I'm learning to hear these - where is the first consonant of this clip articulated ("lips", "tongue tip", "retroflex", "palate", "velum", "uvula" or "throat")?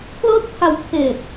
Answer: velum